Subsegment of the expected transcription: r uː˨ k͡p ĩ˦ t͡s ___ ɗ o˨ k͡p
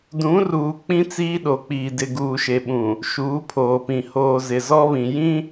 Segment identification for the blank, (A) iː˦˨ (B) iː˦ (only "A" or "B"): B